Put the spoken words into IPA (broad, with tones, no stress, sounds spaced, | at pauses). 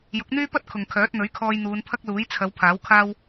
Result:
j ʊ˨˥ k̚ n̪ yː˥ p ɐ˥ t̚ kʰ ʊ˨ ŋ kʰ œː˨˥ t̚ n̪ ɵ˨˥ ɥ kʰ ɔː˧ j n̪ uː˨˧ n pʰ ɐ˥ k̚ l uː˨˥ j t͡sʰ ɐ˨˧ w pʰ aː˨˥ w kʰ aː˥ w